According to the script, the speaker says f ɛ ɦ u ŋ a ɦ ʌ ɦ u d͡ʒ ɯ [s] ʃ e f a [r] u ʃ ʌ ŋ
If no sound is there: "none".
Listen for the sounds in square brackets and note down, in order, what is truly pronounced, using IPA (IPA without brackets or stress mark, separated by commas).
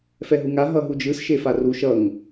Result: s, r